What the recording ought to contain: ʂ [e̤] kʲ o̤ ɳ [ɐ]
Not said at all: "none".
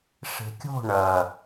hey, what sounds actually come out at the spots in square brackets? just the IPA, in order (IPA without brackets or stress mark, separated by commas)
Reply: e̤, ɐ